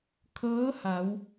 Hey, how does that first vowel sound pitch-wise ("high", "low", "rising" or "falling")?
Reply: rising